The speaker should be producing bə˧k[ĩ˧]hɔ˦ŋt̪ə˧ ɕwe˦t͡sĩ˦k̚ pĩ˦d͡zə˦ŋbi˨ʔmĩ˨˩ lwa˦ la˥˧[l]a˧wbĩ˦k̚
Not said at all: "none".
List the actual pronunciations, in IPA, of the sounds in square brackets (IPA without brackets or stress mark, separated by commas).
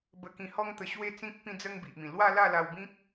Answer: ĩ˧, l